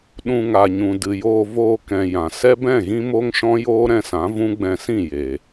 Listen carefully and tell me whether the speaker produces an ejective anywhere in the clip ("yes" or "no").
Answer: no